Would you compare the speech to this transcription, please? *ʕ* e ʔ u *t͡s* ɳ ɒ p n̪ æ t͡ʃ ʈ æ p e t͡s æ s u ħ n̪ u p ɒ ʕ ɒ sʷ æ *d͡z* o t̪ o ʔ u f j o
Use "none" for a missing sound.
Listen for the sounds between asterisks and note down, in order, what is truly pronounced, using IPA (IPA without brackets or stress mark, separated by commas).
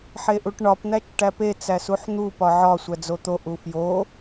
ħ, ʈ, d͡z